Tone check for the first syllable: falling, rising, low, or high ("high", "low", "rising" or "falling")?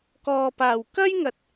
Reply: low